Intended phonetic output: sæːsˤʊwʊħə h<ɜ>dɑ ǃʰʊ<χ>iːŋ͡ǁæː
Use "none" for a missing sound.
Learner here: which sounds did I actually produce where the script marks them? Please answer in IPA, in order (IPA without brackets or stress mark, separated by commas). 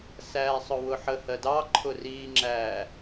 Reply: ɜ, r